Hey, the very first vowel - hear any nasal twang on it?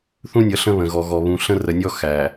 yes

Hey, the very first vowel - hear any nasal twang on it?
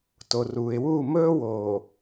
no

